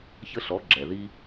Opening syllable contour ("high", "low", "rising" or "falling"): high